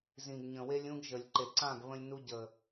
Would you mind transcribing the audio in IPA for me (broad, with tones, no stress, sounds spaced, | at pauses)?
z ĩ˨ ɡ ɲ ə̃˨ w e˦ lʲ ũ˦ ɡ ʒ ə˨ lʲ ǃ e˨ ǀ ã˦˨ ɡ β ə̃˧ lʲ n u˧ ɟ ə˨